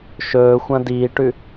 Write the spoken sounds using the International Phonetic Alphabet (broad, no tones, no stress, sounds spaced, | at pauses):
ʃ ɵː xʷ ɐ̃ d iː ʈ ʉ